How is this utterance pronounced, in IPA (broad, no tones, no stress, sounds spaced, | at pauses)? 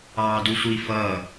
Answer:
ɑː d u sʷ i f ʌː